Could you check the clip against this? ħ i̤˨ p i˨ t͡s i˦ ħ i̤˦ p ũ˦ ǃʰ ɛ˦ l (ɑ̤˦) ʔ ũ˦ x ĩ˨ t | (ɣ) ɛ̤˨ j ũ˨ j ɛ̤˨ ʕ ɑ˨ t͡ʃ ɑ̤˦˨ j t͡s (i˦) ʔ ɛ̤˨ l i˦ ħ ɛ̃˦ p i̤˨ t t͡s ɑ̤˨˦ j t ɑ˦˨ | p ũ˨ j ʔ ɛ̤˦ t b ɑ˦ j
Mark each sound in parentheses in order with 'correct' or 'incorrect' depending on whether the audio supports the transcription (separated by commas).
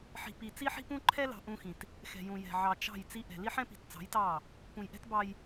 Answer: incorrect, incorrect, correct